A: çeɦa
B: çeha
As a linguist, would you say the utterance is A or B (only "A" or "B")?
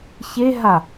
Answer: A